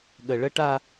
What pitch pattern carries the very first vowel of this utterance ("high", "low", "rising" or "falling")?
low